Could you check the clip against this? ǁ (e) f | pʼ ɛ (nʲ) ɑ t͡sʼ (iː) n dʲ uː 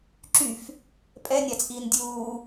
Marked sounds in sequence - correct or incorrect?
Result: incorrect: y, correct, correct

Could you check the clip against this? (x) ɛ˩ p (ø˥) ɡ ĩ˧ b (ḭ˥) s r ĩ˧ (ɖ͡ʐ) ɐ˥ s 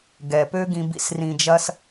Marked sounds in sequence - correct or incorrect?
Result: incorrect: ɡ, correct, correct, incorrect: d͡ʒ

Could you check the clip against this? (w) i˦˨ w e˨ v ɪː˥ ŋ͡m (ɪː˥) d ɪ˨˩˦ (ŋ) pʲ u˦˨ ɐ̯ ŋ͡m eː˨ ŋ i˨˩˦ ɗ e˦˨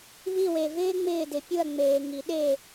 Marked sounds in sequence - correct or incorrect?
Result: incorrect: β, incorrect: ɪː˦˨, incorrect: none

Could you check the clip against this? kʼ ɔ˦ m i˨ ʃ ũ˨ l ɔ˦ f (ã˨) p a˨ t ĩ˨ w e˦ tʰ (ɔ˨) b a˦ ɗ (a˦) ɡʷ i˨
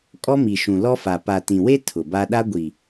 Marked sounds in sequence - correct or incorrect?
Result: incorrect: a˨, incorrect: ʊ˨, correct

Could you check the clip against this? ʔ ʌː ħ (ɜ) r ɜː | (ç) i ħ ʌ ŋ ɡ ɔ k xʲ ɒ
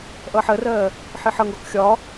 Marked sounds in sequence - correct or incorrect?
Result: correct, incorrect: ħ

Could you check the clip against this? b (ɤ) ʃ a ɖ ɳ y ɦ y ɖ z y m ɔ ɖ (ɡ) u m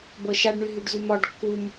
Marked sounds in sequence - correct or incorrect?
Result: correct, incorrect: kː

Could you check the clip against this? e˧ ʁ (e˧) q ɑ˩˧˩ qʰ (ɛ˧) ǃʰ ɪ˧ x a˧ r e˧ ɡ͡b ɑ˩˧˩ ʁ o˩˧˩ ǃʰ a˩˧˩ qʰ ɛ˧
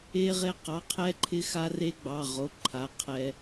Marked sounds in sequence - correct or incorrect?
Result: correct, correct

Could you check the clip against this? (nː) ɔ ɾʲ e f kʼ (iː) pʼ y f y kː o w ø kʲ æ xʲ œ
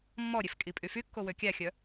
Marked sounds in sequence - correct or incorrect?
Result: incorrect: mː, incorrect: i

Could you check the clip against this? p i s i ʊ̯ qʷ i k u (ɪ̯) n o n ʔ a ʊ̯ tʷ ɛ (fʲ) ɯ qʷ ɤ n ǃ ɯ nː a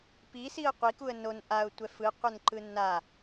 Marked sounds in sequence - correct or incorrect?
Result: incorrect: ə̯, incorrect: f

